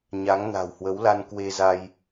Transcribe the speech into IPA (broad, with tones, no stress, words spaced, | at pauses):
ɲa˨˦ŋna̤˨˩w hwə˨˦wla˧n kwe˧za˧j